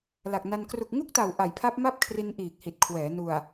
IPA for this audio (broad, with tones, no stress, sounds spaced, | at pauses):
l a˨˩ k̚ n a˧ n k r u˨˩ k̚ ŋ u˥˩ k̚ t a˨˩ w ʔ a˨˩ j pʰ a˦˥ p̚ m a˥˩ p̚ kʰ r i˧ n ʔ iː˨˩ k̚ h i˨˩ t̚ kʰ w ɛː˩˦ n u˨˩ a̯